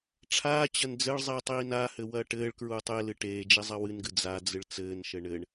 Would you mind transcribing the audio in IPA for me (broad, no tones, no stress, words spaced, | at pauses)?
ʈ͡ʂʰaːt͡ɕɐn d͡zɘɭzˤiːtˤ iːnahɘ wɐːʈɘːɭkɹuːtˤ e lɨʈeːd͡ʒi zˤɐwɨnɡɨ d͡zad͡zɨɭ t͡sɘːnʃɘ ɳɘɳ